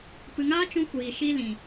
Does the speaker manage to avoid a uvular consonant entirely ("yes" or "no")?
yes